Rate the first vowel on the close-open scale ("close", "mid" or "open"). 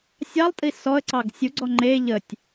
open